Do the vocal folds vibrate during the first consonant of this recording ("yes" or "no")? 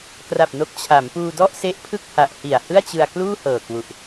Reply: no